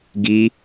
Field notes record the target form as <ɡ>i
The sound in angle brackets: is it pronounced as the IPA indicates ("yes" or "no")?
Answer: yes